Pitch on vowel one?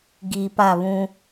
low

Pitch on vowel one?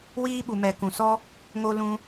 high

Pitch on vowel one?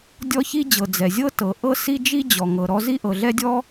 high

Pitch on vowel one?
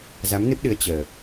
rising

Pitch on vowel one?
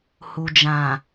low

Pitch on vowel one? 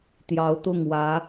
rising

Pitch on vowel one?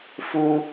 high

